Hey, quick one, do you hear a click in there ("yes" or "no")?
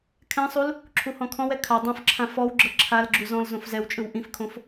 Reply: yes